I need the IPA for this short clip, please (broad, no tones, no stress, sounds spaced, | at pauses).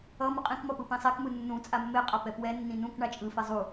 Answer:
ʌ m ɯ qʼ ĩ k m ʌ p ɯ p ĩ sˤ e k m ɯ nː ũ t͡sʼ a mː e qʼ a p ɛ p w ɛ nː ĩ n ũ k ɳ a t͡ʃʼ ɯ f e zˤ u